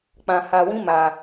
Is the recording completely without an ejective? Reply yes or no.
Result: yes